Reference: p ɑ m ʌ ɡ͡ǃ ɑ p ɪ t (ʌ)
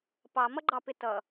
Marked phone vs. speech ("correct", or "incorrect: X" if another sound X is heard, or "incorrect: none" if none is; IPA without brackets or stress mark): correct